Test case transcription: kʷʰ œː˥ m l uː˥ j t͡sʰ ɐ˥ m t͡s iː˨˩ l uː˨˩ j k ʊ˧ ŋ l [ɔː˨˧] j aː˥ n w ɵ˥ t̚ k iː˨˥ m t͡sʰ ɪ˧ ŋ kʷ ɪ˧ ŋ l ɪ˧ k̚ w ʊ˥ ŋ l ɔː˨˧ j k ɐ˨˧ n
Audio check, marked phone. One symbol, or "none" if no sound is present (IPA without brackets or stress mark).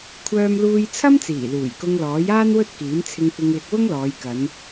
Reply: ɔː˨˥